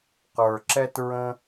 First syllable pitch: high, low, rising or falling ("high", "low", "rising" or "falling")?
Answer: low